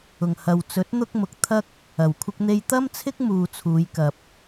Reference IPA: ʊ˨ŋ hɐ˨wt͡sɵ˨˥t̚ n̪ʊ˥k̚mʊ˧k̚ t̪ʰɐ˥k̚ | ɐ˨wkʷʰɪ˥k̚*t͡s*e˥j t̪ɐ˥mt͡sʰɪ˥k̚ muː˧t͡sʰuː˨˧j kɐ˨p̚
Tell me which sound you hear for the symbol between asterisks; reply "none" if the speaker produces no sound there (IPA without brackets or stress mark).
n̪